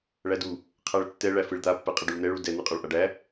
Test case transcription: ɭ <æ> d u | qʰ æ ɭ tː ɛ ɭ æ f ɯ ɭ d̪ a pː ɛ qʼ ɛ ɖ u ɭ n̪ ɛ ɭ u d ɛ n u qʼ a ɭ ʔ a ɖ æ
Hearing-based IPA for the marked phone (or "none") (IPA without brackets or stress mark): æ